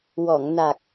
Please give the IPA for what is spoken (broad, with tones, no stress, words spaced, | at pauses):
wɔ˨˩˨ŋ na˨˩k̚